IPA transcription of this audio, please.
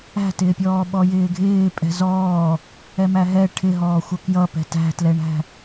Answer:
æ̤ t ɪː pʲ ɔː ɓ ɔ j ɪː ɡʱ ɪː pʼ ɛ̤ z ɔː | ɛ m æ ɦ ɛ ʈʰ ɪ ɦ ɔː xʷ ʌ k j ʌ p ɛ̤ t æ̤ t l ɛ ɳ æ̤

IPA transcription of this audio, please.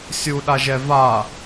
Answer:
sʲ u ɗ a ʒ ɛ v a

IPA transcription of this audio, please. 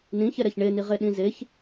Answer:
n ĩ ç ɛ ɾ ɛ ç ɳ e n i ʁ e ɗ ĩ z e ç

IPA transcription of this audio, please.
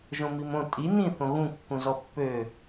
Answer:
ʒ õ m i m õ tʼ i n ĩ θ õ ɣ ũ kː ũ z ɔ pː ø

